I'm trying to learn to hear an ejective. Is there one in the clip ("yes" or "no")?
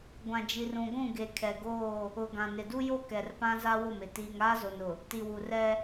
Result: no